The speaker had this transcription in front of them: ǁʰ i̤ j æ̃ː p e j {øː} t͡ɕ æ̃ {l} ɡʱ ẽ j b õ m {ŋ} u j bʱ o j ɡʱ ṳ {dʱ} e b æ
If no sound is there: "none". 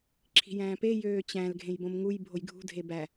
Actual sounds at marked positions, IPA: øː, l, ŋ, dʱ

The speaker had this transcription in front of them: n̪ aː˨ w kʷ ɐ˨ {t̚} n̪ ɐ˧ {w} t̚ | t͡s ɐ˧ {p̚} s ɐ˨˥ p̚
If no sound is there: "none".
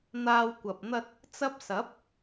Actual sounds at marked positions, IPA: p̚, none, p̚

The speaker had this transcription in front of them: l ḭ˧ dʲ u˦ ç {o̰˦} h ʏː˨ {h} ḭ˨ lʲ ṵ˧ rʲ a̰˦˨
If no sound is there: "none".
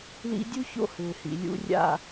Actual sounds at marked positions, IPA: o̰˦, h

